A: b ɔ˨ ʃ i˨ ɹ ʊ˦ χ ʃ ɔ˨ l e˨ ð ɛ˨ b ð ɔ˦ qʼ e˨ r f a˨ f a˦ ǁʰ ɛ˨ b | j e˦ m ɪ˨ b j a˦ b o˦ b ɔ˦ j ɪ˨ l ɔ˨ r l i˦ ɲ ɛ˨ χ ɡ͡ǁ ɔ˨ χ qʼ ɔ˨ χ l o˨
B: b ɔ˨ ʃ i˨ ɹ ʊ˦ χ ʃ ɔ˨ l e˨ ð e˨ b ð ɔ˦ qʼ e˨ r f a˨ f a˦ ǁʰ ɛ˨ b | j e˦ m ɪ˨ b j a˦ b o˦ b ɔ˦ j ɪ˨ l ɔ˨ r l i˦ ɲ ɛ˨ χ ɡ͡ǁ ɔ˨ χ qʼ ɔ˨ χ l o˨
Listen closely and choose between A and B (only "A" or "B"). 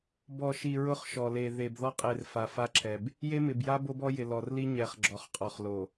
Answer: B